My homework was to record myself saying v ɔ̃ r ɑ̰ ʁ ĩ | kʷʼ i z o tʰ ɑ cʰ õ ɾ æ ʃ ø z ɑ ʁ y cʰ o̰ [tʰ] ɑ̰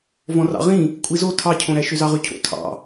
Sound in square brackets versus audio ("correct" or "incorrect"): correct